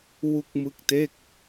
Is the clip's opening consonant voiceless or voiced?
voiced